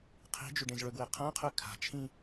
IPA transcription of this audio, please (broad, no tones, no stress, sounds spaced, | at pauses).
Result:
qʰ i̤ d͡ʒ ʉ ɖ ẽ z ɭ ɵ ɡ w e qʰ ã qʰ ʉ kʰ a̤ t͡ʃʰ ĩ